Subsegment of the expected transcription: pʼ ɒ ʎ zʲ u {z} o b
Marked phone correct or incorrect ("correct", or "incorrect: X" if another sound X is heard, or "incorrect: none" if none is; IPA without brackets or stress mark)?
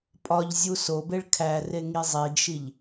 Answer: incorrect: s